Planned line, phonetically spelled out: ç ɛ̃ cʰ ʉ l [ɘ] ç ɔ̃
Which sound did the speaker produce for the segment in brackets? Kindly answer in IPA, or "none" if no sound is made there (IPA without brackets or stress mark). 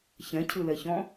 ɛ